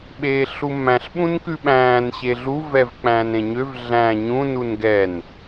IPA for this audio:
ɓ eː ɬ u m æ̃ ɬ ɓ ũ n k ʉ ɓ æ̃ː n ɕ e ɮ u v ɛ v k͡p æ̃ː n ɾ ẽ ɲ ø v ɮ æ̃ ɲ ũ n u n ɡ ɛ n

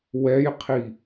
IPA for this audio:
w ɛ j qʰ i

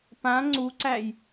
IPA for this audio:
p ã ŋ͡ǀ u ǀ æ j

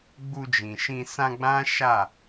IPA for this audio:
ɡ͡b u˧ d͡ʒ ĩ˨ ʃ ĩ˧ s ã˧ ɡ͡b ã˦ ʃ a˦˨

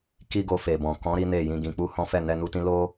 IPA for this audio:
k i˦ ɡ o˧ f e˨ b ɔ̃˨ k ɔ̃˨˦ ɾ i˦ n e˦˨ j ĩ˧ ɡ ĩ˧ k͡p u˧ h ɔ̃˦ f ɛ˦˨ n ɛ˧ n u˧ t ĩ˦ l o˦

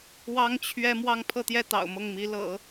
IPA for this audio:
w ɑ˥ ŋ t͡ɕʰ ɥ ɛ˥ m w ɑ˥˧ ŋ pʰ ɤ˥˧ t̪ j ɛ˥˩ t̪ ɑ̰˨˩ ʊ̯ m ɤ˥˩ ŋ m i˧˥ l ɤ̰˨˩˦

